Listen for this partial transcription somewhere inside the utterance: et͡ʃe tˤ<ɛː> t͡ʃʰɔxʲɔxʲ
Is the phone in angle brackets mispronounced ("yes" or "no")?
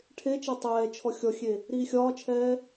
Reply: no